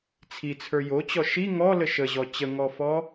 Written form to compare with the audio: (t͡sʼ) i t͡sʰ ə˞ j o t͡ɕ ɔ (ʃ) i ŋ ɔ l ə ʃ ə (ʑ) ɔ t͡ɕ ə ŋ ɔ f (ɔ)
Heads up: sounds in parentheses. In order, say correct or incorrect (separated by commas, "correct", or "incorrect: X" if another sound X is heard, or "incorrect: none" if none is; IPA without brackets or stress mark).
incorrect: t͡sʰ, correct, correct, correct